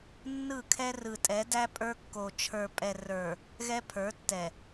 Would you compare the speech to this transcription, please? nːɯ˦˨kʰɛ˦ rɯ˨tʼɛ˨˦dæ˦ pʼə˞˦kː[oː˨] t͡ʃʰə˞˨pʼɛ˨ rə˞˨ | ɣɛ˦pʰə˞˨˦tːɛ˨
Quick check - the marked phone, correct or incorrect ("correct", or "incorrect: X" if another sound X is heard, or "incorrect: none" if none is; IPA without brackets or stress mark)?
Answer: incorrect: o˨